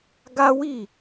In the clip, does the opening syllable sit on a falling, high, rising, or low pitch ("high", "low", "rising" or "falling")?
high